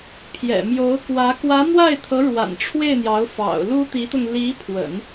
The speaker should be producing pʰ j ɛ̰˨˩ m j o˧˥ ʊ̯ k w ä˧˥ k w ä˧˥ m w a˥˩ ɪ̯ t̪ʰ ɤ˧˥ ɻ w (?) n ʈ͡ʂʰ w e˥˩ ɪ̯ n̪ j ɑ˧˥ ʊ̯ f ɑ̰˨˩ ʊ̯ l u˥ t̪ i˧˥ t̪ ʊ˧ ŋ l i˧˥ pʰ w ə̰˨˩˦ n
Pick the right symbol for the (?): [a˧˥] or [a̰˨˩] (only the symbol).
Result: a̰˨˩